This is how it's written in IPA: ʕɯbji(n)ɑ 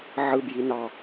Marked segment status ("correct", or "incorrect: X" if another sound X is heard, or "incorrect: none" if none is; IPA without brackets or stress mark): correct